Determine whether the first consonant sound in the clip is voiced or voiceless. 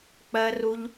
voiceless